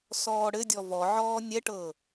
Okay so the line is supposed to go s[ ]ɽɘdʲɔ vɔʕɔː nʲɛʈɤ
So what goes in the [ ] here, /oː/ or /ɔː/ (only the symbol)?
ɔː